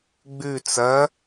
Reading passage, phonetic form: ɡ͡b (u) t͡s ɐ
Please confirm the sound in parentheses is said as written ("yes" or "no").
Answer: no